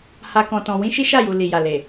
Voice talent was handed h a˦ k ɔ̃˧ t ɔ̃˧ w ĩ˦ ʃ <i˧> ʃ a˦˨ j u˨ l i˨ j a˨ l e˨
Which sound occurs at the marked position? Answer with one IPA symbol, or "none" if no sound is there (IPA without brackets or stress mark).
i˦